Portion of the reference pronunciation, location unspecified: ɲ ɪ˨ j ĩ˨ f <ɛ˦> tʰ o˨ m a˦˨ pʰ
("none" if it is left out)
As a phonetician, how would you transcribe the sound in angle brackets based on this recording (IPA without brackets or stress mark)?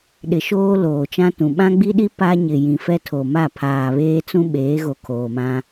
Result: ɛ˦